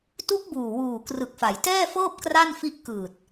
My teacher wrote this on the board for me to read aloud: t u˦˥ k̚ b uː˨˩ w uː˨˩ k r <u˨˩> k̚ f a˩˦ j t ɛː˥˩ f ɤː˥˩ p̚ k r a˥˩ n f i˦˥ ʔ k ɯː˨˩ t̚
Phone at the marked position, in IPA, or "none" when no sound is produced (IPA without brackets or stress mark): ɯ˨˩